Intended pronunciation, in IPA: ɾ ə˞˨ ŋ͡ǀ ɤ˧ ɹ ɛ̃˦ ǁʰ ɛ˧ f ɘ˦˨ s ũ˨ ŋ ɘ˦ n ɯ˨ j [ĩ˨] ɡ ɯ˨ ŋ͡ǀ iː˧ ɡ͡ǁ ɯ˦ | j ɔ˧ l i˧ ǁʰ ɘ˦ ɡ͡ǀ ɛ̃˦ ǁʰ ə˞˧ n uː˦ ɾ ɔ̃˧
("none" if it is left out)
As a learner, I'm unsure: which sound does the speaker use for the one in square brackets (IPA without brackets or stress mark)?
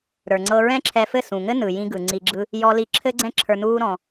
ĩ˧